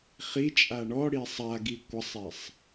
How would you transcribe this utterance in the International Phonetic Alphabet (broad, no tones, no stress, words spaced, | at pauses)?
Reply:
χit͡ʃʼa ɳɔ ɽisˤaɡi kʷʌsˤesˤ